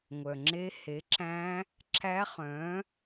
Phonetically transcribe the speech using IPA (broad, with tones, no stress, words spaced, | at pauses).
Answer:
ŋʷœ˨ŋ͡ǁe˦˥ he˨˥ǁæ̃˦˥ | ǁæ˦˥χœ̃˨˥